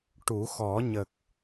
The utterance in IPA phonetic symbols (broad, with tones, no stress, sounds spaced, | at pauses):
ʈ u˨˩˦ x ɔ˨˩˦ ɲ ə˨˩ k̚